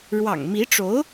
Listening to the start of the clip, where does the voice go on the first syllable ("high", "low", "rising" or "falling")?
low